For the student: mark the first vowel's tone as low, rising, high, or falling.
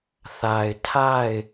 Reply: low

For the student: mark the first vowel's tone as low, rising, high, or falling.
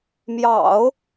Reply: low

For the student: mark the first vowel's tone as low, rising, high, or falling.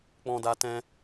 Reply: high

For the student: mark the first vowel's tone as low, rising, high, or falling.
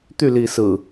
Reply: falling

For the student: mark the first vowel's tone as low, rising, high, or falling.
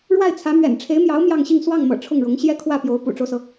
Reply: falling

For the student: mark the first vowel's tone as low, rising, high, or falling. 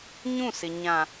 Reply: falling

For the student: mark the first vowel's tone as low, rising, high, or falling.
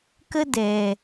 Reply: high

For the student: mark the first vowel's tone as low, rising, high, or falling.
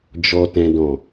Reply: high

